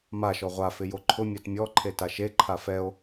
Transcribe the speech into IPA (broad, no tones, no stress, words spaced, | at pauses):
maʃɔ ʁʷafɪ joǃʰʊmʲat mʲɔǃʰe taʃeǃʰa fɛo̯